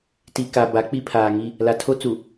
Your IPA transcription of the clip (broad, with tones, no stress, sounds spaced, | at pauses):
t i˨ k a˨ b a˨˦ k͡p i˦ pʰ aː˨ ŋ i˦ | l a˨ tʰ o˦ t͡s u˨